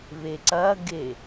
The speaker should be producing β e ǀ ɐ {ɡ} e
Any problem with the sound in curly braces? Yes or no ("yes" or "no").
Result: no